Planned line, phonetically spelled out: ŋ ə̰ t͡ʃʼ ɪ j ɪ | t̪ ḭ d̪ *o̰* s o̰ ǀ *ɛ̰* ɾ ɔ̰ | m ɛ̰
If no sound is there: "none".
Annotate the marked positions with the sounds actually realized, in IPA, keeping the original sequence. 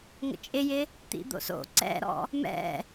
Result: o̰, ɛ̰

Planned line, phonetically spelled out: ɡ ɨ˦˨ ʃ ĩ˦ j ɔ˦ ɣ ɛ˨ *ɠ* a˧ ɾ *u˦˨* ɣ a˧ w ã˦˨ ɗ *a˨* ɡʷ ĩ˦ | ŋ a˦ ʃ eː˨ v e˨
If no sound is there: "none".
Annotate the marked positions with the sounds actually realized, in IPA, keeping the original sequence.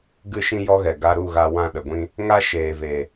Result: ɡ, u˦˨, ə˨

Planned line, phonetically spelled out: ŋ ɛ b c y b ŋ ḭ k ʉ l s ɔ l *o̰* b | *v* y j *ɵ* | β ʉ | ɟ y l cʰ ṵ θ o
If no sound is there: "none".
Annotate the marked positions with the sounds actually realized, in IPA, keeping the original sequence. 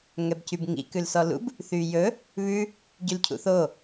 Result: ṵ, θ, ɵ

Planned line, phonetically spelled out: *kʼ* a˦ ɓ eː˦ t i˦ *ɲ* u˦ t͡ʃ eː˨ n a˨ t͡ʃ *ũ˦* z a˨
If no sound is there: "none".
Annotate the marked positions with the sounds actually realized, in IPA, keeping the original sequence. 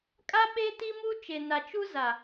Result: kʼ, m, u˦

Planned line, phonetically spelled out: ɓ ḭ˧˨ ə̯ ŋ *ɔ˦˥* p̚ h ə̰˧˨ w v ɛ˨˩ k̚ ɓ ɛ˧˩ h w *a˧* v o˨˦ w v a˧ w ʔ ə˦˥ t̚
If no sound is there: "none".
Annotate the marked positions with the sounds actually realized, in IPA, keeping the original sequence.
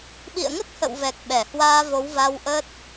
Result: ə˦˥, aː˧

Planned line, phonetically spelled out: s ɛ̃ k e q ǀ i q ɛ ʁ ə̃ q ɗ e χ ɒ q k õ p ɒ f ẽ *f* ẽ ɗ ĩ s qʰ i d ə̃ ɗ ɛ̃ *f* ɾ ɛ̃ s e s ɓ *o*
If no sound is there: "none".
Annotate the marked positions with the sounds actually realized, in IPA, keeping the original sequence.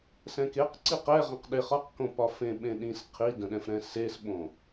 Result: ɓ, f, õ

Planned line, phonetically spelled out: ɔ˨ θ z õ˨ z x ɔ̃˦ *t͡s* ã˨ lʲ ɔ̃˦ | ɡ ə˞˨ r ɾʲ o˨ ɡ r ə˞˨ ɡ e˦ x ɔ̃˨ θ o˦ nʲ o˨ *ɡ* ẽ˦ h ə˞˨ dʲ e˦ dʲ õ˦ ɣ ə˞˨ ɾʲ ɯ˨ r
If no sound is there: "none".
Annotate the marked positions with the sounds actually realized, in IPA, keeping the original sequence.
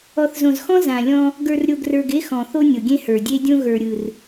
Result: z, ɡʲ

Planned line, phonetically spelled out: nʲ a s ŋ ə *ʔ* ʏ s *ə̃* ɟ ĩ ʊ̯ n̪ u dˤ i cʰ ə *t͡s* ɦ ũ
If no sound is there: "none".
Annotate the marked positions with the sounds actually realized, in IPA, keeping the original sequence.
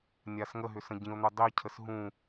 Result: ɦ, ə̃, s

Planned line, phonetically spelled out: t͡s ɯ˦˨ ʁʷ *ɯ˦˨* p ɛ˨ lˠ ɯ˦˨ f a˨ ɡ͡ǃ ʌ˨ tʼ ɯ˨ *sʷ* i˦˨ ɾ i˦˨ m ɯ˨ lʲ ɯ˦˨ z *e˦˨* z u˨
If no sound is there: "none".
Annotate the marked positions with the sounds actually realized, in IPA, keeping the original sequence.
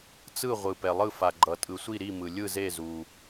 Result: ɯ˨, sʷ, e˦˨

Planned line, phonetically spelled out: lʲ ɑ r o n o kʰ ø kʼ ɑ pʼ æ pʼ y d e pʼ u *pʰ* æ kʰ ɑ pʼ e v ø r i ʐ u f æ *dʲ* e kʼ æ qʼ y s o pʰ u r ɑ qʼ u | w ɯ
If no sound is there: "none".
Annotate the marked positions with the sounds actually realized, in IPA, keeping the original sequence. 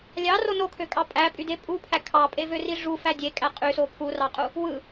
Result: pʰ, dʲ

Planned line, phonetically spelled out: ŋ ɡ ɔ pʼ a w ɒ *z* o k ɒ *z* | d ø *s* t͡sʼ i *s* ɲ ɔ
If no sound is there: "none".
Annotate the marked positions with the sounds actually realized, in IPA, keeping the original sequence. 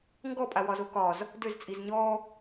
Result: z, z, z, z

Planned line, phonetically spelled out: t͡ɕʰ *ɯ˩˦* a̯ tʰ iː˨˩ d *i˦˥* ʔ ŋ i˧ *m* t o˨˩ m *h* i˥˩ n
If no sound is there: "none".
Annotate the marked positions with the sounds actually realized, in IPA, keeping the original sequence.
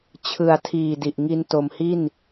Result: ɯ˨˩, i˨˩, n, h

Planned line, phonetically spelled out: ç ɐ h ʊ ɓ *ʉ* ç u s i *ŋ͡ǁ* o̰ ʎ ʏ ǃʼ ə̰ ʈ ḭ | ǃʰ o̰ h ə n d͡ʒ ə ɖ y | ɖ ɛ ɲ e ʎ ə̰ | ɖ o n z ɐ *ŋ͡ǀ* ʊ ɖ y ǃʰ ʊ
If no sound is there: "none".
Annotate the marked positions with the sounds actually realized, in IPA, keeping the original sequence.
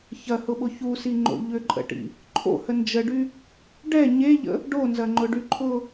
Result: ʊ, ŋ͡ǃ, ŋ͡ǃ

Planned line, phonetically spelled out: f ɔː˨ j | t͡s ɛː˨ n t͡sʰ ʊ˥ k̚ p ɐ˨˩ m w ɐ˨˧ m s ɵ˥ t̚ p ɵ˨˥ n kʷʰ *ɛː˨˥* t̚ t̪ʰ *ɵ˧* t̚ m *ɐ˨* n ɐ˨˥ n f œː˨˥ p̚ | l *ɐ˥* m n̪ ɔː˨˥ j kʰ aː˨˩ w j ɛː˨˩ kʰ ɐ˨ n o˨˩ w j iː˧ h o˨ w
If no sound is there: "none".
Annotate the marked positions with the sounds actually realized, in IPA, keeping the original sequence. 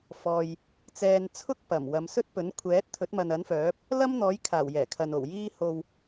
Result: ɛː˨˥, ɵ˨˥, ɐ˨, ɐ˥

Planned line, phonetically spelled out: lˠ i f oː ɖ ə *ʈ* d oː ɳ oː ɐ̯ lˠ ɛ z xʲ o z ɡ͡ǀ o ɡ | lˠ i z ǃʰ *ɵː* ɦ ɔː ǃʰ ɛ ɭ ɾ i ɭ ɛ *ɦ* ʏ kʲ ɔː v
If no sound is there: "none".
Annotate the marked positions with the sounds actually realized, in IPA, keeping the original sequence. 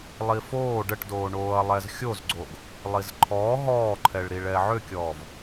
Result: ʈ, ɔː, ʕ

